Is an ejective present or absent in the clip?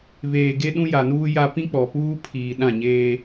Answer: absent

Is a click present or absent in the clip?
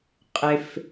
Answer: absent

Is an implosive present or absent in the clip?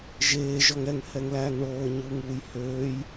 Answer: absent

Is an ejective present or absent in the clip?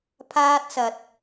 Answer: absent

